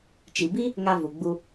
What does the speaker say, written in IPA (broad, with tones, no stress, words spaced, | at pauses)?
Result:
t͡ʃi˨bi˦ | ŋa˧vu˨ ɡ͡bu˧